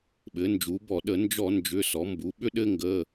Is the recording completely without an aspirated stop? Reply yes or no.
yes